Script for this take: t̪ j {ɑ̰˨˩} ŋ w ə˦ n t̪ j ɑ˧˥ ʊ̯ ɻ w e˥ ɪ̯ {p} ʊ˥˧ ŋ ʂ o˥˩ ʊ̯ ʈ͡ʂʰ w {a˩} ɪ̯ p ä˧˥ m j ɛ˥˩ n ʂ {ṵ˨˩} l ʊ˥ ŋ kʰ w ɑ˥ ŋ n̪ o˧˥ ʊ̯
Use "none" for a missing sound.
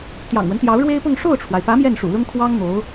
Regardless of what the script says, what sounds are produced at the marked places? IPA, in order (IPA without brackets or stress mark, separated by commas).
ɑ̰˨˩, p, a˩, ṵ˨˩